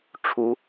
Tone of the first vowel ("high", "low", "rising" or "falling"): rising